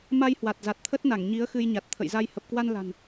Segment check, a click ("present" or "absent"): absent